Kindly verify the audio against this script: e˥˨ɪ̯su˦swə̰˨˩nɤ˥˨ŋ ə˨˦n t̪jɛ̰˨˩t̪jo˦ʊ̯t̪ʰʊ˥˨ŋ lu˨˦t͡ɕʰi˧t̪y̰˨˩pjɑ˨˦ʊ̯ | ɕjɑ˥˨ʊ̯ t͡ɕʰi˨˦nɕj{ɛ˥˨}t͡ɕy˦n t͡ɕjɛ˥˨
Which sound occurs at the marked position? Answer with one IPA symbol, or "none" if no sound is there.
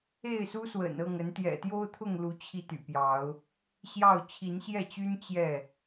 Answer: ɛ˥˨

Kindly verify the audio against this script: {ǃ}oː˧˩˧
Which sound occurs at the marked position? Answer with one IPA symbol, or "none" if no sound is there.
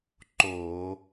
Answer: ǃ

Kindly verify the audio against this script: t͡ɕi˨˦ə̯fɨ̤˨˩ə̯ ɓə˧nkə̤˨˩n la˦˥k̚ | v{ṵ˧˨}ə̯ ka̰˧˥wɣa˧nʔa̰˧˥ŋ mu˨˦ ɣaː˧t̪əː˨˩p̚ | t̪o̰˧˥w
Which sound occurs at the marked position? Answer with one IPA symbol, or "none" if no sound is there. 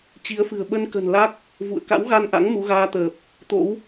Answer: ṵ˧˨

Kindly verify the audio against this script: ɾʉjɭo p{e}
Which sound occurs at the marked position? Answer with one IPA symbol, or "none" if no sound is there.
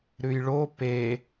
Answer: e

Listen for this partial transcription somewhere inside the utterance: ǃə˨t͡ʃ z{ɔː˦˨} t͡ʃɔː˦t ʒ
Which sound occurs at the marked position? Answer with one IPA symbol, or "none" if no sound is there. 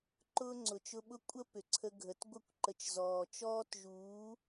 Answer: ɔː˨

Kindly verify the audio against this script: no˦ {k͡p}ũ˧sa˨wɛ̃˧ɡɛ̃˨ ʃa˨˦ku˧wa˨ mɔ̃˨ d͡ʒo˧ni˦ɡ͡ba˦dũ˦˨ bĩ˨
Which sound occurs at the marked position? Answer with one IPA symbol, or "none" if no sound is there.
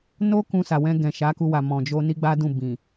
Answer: k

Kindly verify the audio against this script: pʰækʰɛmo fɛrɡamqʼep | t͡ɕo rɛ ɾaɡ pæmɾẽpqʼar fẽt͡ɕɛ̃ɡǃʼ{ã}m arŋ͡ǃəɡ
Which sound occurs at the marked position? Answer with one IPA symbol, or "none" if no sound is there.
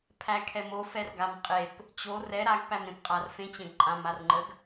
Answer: ã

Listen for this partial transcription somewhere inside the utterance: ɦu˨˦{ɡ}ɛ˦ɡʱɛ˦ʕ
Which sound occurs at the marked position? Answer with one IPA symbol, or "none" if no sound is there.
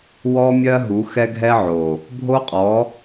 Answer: x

